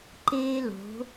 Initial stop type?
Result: click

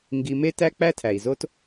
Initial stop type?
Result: plain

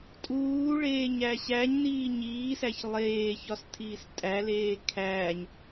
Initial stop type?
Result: ejective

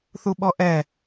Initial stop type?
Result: implosive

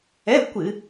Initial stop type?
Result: plain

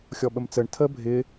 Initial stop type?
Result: implosive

